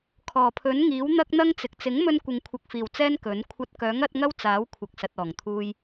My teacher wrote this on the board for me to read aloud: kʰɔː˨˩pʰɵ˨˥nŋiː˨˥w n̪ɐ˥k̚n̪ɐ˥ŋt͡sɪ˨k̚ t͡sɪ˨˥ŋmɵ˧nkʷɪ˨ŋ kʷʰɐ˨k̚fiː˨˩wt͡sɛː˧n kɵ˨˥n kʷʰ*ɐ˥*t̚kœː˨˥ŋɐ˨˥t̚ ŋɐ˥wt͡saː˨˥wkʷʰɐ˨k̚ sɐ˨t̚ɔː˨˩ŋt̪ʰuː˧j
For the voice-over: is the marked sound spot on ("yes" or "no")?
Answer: no